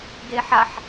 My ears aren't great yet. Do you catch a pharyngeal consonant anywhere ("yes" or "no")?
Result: yes